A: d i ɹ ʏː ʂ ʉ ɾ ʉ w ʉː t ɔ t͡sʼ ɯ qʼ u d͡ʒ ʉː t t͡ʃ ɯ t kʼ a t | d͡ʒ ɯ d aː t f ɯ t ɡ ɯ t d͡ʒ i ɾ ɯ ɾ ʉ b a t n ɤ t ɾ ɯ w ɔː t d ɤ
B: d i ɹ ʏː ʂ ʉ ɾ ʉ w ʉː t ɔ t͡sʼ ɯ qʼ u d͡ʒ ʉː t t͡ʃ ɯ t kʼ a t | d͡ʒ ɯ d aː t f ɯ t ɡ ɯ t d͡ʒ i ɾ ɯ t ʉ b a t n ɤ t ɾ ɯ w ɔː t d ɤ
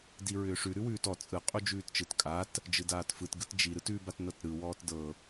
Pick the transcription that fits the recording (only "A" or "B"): B